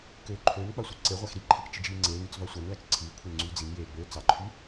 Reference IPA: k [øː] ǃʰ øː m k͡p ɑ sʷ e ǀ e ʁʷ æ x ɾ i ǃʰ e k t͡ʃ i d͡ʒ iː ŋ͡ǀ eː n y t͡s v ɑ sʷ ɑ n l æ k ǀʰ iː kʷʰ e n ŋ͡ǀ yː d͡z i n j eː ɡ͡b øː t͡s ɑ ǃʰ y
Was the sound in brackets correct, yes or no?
yes